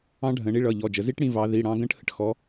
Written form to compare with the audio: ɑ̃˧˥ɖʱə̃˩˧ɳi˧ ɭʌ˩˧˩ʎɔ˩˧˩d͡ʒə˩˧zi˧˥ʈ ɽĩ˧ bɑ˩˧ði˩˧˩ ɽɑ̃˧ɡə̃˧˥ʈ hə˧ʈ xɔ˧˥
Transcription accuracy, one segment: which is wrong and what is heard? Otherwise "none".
b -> v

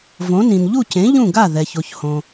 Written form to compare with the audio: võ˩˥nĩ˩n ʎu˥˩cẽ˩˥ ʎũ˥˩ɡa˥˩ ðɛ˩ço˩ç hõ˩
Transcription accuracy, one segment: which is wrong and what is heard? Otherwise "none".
none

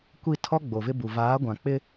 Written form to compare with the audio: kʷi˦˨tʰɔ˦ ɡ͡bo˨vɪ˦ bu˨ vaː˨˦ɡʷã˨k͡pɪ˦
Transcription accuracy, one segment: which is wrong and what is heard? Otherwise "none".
none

